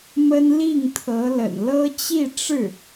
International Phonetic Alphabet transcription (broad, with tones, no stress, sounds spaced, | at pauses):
m ə˥ n l i˥˩ ŋ t̪ʰ ɤ˧˥ l ə̰˨˩ n l ɤ˥ t͡ɕ i˥˧ ʈ͡ʂ ɻ̩˥˩